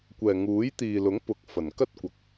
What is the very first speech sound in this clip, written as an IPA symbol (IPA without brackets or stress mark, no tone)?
kʷ